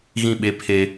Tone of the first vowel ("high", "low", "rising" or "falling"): falling